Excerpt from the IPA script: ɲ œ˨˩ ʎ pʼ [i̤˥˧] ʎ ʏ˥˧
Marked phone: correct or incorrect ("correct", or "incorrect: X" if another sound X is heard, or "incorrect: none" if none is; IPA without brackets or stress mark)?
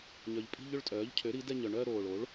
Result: correct